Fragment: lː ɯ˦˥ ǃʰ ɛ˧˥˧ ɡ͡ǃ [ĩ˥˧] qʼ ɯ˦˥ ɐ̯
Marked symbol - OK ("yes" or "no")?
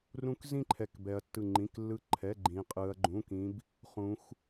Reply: no